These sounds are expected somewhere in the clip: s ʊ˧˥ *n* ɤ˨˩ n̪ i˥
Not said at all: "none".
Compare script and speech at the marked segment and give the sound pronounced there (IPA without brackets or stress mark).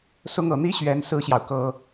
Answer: ŋ